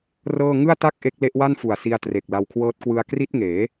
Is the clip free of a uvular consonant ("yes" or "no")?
yes